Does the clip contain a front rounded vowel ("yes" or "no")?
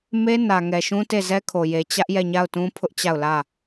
no